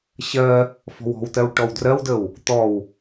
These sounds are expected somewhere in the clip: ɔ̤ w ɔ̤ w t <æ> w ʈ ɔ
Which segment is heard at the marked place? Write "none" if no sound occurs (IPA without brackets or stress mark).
ɜ